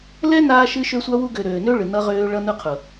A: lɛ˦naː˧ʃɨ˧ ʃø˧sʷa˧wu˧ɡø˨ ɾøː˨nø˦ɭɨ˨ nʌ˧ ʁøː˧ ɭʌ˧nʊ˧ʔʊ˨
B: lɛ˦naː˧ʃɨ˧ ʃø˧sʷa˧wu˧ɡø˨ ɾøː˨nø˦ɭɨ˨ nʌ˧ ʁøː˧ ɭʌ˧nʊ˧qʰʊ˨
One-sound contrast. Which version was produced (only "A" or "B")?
B